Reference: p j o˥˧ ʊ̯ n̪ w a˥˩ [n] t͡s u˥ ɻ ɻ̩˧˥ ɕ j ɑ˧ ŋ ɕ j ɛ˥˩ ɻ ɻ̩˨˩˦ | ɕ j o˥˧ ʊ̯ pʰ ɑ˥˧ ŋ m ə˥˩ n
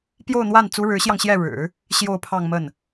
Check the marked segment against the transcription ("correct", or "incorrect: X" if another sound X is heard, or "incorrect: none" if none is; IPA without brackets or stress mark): correct